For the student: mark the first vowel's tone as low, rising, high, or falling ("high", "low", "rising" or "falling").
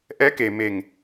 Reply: rising